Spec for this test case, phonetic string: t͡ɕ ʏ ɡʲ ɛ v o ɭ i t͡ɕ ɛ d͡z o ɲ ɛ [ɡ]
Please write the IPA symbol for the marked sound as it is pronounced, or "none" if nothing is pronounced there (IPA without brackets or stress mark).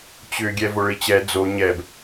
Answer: b